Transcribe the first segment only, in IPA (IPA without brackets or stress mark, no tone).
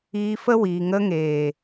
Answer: iː